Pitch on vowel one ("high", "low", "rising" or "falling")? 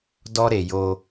high